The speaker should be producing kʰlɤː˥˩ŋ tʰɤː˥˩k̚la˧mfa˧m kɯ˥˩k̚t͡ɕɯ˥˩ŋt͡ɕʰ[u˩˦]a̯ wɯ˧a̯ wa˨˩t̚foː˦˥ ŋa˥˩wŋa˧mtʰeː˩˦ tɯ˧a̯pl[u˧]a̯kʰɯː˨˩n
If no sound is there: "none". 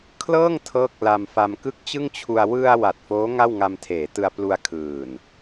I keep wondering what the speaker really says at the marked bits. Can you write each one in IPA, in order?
u˧, u˧

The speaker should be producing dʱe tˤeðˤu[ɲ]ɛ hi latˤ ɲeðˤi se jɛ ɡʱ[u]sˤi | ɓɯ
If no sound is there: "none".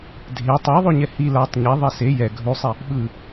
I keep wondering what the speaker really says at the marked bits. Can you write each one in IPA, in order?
ɲ, u

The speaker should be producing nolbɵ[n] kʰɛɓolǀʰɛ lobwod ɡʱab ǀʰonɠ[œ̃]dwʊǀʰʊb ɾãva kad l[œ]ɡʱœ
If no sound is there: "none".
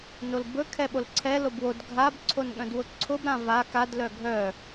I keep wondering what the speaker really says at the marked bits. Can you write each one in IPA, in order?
none, œ̃, œ

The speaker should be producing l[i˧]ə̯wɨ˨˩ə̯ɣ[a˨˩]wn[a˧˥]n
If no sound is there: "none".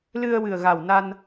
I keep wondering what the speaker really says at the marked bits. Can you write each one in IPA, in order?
ɨ˧, a˨˩, a˧

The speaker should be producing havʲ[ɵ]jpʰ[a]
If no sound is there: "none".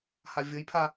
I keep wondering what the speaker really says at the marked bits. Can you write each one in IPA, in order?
ɤ, a

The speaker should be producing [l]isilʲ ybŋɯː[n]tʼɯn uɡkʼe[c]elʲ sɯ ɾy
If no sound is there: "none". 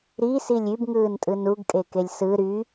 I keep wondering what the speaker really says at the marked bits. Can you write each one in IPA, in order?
ɾ, n, k

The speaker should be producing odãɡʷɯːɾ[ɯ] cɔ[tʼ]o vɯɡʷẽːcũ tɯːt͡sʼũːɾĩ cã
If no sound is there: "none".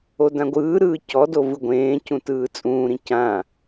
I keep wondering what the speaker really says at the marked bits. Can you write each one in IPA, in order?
ɯː, d

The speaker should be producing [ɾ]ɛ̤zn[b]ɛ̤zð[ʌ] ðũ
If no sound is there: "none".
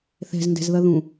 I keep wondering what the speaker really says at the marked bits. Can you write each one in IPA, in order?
θ, d, ʌ

